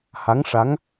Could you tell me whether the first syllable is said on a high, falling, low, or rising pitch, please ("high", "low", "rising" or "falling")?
rising